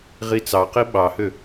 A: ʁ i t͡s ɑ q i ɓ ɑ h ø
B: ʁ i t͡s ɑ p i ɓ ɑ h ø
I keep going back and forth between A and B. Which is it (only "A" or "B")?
A